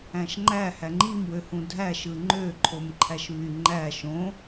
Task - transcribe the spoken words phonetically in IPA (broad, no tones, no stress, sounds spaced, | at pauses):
æ̃ ʃ ŋ͡ǃ æ h æ ŋ͡ǃ i m w ø h ũ dʱ æ ʃ ɯ ŋ͡ǃ ø ǃʰ o m ǃʰ æ ʃ β y ŋ͡ǃ æ ʃ õ